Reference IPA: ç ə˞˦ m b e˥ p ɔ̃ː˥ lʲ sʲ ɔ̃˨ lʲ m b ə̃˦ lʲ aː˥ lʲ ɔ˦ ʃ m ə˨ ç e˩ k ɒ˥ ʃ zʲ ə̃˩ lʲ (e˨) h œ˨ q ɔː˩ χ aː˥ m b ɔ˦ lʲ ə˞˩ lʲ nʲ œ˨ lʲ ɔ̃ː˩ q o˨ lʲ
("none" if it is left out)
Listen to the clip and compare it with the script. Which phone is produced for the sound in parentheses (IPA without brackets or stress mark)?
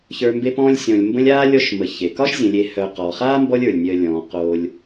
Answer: e˨